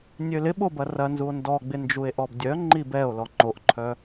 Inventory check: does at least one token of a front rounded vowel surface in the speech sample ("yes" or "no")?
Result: yes